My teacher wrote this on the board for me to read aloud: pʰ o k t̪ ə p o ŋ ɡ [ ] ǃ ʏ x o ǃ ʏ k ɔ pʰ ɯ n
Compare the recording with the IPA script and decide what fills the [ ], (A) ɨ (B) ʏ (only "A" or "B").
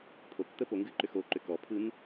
A